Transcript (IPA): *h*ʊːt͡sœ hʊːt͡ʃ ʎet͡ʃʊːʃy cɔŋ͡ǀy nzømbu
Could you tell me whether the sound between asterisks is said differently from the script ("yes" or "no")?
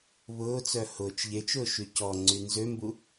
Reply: yes